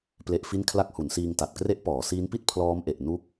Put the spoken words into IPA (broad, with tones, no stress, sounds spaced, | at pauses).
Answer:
p l e˦˥ ʔ f i˥˩ n kʰ l a˦˥ k̚ h u˩˦ n s iː˧ ŋ t a˨˩ t̚ k r e˦˥ ʔ p ɔː˩˦ s iː˦˥ n p i˥˩ t̚ pʰ l ɔː˦˥ m ʔ e˨˩ ʔ n u˦˥ k̚